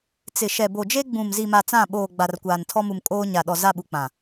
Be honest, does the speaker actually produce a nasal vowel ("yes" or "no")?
yes